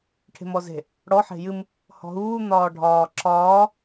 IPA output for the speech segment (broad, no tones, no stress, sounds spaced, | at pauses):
ʈʰ e̤ m ɔ z e̤ | ɽ ɔ ħ e̤ j ɨ m | h ɔ̤ ɦ uː n̪ ɒː ɖʱ ɒː ǁʰ ɒː